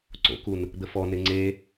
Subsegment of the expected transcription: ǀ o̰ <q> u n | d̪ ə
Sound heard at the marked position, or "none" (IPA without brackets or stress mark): k